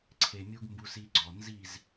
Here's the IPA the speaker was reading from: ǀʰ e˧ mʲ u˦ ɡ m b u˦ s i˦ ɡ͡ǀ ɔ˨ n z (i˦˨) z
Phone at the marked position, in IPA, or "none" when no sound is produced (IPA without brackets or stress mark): i˦˨